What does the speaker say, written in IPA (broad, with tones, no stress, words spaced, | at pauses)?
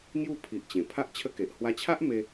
ŋju˥˧pʰi˨ʔ t͡ɕẽ˨˩ pʰa˦ʔt͡ɕʰə˦ke˨ʔ hwa˧t͡ɕʰa˦ʔ me˧